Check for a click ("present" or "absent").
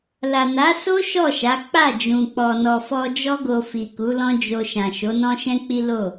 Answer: absent